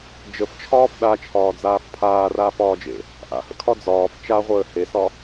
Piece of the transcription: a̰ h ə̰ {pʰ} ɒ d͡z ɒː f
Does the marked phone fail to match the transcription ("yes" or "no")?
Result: yes